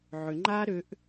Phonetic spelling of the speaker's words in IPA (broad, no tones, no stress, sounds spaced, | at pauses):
ʕ ʏ ŋ͡ǃ aː ɾ ʏ ʔ